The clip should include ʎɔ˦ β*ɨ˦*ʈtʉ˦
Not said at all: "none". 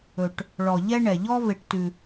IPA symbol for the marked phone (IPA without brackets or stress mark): e˦